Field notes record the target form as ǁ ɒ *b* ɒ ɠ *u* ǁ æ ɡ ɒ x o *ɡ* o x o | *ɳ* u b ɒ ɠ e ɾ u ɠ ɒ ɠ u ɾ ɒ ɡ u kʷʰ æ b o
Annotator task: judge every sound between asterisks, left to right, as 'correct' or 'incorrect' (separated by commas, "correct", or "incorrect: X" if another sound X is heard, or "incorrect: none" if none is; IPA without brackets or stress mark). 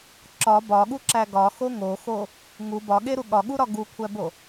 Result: correct, correct, incorrect: ŋ, incorrect: ŋ